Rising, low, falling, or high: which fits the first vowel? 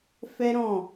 high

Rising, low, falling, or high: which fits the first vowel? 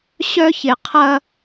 high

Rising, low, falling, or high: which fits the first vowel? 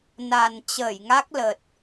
low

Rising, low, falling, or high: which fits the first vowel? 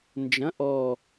rising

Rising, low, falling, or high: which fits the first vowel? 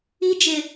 high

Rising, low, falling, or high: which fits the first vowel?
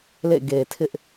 falling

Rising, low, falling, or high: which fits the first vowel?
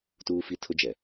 high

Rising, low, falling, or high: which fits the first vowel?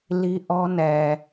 high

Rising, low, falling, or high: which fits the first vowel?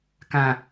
low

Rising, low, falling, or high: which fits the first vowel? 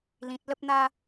low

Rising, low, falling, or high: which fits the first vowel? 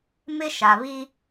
high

